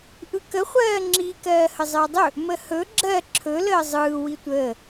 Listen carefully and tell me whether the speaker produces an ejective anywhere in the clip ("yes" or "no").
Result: no